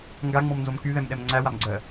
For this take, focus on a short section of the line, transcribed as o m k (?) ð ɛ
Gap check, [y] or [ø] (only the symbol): y